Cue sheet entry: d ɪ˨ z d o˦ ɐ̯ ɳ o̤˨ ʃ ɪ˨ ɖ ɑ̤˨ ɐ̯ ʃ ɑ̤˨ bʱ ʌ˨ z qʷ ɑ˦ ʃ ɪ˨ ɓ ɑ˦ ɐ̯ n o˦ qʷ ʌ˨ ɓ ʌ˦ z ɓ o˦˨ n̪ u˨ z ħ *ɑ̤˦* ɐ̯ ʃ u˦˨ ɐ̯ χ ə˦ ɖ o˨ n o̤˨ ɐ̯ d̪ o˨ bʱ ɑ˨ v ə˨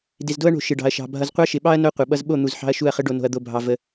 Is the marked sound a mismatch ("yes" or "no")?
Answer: no